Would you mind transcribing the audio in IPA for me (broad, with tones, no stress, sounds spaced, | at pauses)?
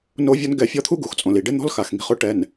n o˦ vʲ ɔ˦ n ɡ ɛ˦˨ fʲ ɔ˦ t̪ʰ u˦ ɡ u˨ x t͡sʼ õ˨ l i˨ ɖ ɪ˦ n̪ ɔ̤˦ l x a˨ x ŋ i̤˨˦ χ ʊ˦ ʈ ɛ˨ n